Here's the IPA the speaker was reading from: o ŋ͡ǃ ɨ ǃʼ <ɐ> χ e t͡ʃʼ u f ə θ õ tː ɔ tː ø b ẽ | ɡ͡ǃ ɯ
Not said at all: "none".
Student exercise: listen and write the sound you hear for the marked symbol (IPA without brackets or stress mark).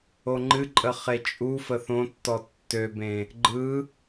ə